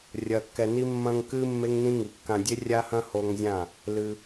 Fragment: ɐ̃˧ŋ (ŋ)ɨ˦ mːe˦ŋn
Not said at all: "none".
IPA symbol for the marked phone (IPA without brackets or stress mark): k